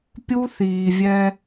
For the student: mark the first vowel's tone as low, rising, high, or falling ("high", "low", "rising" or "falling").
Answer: high